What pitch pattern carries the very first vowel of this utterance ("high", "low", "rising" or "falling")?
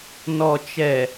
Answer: low